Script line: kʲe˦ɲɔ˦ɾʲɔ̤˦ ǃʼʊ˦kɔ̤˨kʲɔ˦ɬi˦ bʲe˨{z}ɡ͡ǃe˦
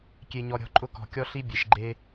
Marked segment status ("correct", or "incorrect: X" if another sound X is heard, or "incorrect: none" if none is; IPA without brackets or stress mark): incorrect: ʃ